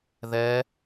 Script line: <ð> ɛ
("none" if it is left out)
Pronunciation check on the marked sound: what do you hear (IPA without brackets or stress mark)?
ð